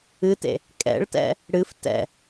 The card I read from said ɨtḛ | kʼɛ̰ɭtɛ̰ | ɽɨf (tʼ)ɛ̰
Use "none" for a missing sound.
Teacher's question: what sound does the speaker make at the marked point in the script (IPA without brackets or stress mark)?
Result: t